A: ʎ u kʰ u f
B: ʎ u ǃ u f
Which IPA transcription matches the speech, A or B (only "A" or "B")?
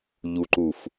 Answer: B